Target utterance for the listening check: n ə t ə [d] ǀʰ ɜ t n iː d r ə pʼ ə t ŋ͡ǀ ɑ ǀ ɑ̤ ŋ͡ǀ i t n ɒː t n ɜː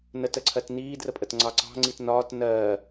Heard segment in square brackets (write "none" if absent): none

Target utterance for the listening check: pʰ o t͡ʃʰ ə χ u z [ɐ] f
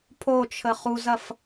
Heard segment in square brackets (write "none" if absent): ɐ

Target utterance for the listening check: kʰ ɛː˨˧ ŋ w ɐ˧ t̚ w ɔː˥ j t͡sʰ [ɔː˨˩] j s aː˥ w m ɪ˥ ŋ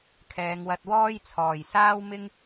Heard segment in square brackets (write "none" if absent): ɔː˨˩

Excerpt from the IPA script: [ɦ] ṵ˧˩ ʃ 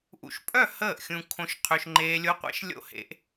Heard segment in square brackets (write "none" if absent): ʔ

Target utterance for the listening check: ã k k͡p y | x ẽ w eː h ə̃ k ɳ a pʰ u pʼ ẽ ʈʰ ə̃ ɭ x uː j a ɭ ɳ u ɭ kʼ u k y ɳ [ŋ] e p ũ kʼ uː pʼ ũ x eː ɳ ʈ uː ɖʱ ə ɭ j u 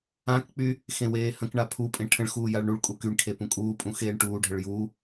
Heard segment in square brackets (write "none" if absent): kʰ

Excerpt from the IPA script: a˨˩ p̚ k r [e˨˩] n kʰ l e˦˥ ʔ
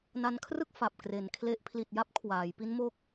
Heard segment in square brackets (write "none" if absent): e˨˩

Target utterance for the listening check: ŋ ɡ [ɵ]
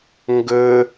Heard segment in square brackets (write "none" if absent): ɵ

